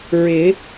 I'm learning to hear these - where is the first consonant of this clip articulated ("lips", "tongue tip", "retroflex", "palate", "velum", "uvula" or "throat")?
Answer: tongue tip